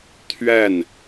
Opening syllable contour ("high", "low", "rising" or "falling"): falling